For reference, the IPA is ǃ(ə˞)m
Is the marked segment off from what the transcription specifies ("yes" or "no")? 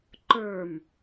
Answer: no